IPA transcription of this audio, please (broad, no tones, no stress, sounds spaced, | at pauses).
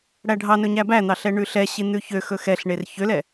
ɽ æ ɖʱ ɑ n ɵ ɲ æ b æ n̪ ɑ ɬ ɛ ɳ ʉ ɬ ɛ ɕ i n̪ ʉ ç ø x ɵ x ɛ ɬ ɳ e r ç ø l ɛ